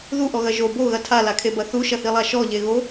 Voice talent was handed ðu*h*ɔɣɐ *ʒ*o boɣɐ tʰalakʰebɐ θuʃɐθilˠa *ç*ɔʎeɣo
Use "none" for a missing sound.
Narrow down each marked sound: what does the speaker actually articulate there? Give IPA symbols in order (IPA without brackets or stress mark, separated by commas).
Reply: ʔ, ʒ, ʃ